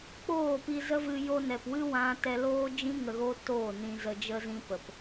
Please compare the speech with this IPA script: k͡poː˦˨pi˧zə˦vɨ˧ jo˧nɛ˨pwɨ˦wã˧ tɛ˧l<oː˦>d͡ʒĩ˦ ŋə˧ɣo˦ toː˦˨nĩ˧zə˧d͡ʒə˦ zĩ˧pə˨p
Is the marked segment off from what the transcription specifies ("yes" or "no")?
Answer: no